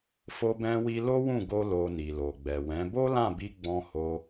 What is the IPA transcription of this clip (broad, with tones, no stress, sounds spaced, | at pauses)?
f o˧ b ɛ̃˧ w i˧ l o˦ w ũ˦˨ ɡ o˧ l o˨ n i˨ l o˨ ɡ͡b ɛ˨ w ɛ̃˨˦ b o˦ l ã˦˨ b i˧ ɡ͡b ɔ̃˧ h o˧